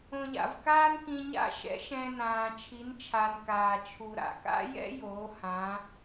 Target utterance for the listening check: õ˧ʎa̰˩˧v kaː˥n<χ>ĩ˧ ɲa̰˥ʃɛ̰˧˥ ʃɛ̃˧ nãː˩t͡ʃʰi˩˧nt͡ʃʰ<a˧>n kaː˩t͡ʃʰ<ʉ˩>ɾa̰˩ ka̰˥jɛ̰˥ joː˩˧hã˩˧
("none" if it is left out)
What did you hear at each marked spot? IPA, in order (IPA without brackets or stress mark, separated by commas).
k, a˩, u˩